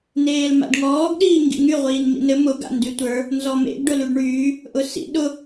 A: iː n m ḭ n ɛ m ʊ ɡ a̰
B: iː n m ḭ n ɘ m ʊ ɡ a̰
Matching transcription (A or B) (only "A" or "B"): B